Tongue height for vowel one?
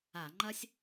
low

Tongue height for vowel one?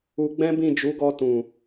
high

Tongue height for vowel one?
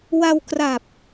low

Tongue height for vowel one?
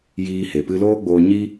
high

